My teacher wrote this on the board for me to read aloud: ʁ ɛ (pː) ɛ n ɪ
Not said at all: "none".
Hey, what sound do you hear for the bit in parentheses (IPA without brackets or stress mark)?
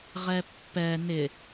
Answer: pː